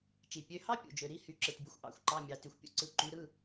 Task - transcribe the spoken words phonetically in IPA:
t͡ʃi˩ pʲø˩˧˩hɑ˥ pʲṵ˩d͡ʒø˩ ɾi˩˧˩hy˩˧ǁɯ˩tbʲu˩˧xʷ ʔɑ̰˩˧xʷǃɑ˩˧˩mʲɑ˩ ty˩xʷpʲṵ˥ǀɯ˩˧˩ ǃy˩˧ɾɯ˩˧˩

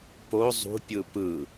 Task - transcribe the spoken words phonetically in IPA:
po zˤṳpʲɯ pɯ

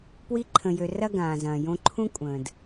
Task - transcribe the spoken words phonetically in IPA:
pwi˧ǃʰə̃˨jø˨ rɐ˦ɡãː˨zɐ̃ː˨ jõ˧ǃʰũ˦ kʷʼə̃ː˨d

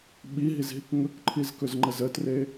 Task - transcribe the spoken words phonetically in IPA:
ɓiɦizɦik ŋɵkǃʰizkɵzŋ͡ǃəz ətre

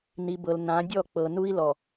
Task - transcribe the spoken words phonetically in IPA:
ni˨bɤ˨l nã˨˦dʲɔ˦˨k͡pɤ˨ nu˦i̯lɔ˨

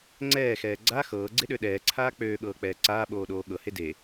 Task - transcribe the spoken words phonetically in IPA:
ŋ͡ǀɛːxɛː ɡ͡ǀa xɤːɡ͡ǀeɗø ɗɛːǀʰaː k͡pøːɠɤːk͡pɛː ǀaːɓoːɗoː ɠɤhe de

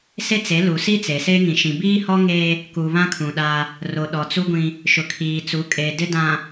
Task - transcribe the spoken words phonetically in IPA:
se˦t͡se˨˦lu˨ si˦t͡se˨se˦ ŋĩ˨ʃĩ˨ biː˦hɔ˦ŋeː˦ | kuː˨βã˦kʰũ˨ ɗaː˦ | ro˨ɗɔ˨t͡su˦ɡʷĩ˦ | ʃʊ˨kʰiː˨t͡su˨˦ kʼe˨dɪ˦ dã˨

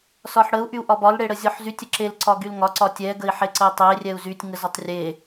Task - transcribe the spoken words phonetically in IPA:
sɒħɽəu̯ ʔyu̯ʔɒbɒl ɽeɽəzʲɔħzytʲ əǁel ǀɒɡylŋɒ ǀɒtʲɛ ɡəi̯ħeǀəi̯tˤe rʲɛu̯zytʲ ŋəzɒtˤrʲe

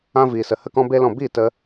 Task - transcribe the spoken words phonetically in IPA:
ã˧ viː˨sə˨ hə˦kɔ̃˦be˦lɔ̃˦˨ biː˦˨tə˧

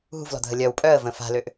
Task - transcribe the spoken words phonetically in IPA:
ɦṳvlɔ̤dʱə lʲœw pʼœə̯və̃ fa̤løʔ

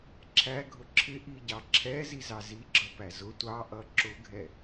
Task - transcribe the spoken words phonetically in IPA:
ǁʰæɡʱʊ ǁʰɪʔiɟɑ ǁʰɛzizɑ ziɡ͡ǁʌpæ zʊ tʷɑʔʌ ǁʊɡʱɛ

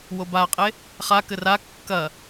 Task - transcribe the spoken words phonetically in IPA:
wobaqʼe | χakɘ ra kːɐ

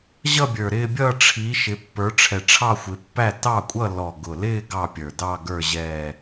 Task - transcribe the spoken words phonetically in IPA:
ʑʌ˥˧bʲə˞˨˩ɾɪː˥˧bʲʌː˥˧ ʈ͡ʂʰi˨˦ʃɪ˨˦ pːə˞˨˦ʈ͡ʂʰɛ˨˩ʈ͡ʂʰɑ˥˧xʷɪ˨˦ pːæ˥˧tɑ˥˧kʷʼʌ˥˧ lɔ˨˩ ɡʊ˨˩lɪː˥˧ ɡɑ˥˧pʲə˞˨˩ dɑ˥˧ ɡə˞˥˧ ʑɛː˥˧

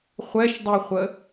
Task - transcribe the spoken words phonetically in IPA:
χʷɛʃdˤiχʷə

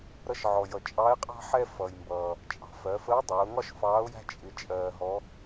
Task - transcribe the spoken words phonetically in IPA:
ɾʌ˧ʃʕɔ˩jʌ˩ t͡ʃʼɑ˧˥ɪ̯qʼɑ̤˥ ħɛ˥fʌ˩j mbʌː˩ | t͡ʃʼɑ̤˩ fɜ˩˧fə˧˥ʊ̯dˤəː˩˧ʊ̯ŋɒ˥ʃ fɑː˧˥ʊ̯jæ̤˥ t͡ʃʼɪ˧˥ t͡ʃʼɜː˧ɦɔ˧˥

